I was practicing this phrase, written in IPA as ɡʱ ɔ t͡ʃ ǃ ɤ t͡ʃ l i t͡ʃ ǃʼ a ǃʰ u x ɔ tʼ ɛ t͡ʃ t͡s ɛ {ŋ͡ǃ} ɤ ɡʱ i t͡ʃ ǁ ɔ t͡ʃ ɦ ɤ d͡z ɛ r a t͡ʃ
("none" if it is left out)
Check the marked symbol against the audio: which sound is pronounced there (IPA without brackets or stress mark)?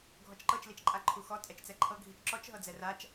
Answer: ǃʰ